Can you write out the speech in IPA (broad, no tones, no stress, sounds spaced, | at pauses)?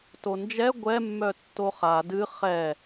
t o n d͡ʒ ɛ ɡʷ ɛ mː œ tː o χ a d ɨ χ ɛ